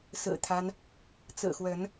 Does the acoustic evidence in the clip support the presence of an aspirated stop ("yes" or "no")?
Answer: yes